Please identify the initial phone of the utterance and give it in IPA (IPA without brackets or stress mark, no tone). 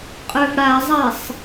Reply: qʼ